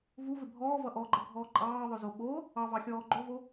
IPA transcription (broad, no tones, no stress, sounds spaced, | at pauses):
v u v ɪ bʱ ɔː v ʌ ʔ ɔ ɡ͡ǃ ʌ ɡʱ ɔː ǃʼ ɑː ðˤ ɵ z o ɓ o | ɑ v ɑ xʲ ɔː ɡ͡ǃ o v o